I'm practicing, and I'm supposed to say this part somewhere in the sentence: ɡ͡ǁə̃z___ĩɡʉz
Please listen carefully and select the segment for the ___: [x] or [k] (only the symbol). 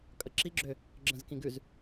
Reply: k